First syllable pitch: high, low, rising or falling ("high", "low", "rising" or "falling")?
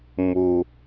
low